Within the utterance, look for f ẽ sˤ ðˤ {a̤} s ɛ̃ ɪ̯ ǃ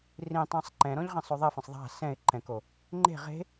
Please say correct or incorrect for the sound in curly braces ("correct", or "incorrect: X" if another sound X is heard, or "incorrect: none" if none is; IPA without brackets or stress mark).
correct